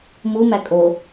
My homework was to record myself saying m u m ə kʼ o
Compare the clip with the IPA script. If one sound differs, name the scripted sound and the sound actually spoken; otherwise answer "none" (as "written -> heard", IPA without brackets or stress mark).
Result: ə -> æ